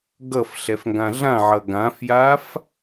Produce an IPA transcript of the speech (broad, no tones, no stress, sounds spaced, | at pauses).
ɡ ʌ f ɬ ɛ f ŋ ɡ ã ɮ ã ʕ ʌ ɡ ã f j a f